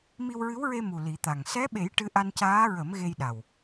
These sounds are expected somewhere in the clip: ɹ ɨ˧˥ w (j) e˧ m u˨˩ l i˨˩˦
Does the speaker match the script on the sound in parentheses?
no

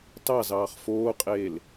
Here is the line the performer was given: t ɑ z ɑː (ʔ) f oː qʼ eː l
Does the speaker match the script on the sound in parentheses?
no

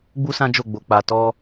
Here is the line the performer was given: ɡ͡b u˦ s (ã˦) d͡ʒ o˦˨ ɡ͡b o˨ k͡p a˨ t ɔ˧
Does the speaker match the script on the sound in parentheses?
yes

